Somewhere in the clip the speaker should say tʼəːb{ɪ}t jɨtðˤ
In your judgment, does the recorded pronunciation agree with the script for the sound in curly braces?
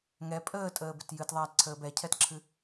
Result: yes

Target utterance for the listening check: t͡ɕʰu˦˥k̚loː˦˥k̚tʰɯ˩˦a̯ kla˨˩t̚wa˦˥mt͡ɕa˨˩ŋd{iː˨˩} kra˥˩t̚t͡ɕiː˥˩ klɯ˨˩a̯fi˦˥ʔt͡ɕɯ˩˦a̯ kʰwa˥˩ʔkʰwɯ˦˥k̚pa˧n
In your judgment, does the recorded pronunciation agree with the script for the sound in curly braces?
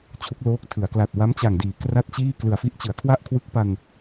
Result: no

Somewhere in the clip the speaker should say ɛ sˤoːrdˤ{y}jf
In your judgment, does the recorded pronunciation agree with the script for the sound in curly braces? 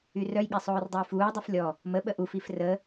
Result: no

